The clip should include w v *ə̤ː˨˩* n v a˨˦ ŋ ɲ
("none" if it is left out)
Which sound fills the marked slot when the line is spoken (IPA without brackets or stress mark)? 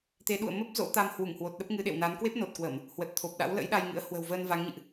əː˧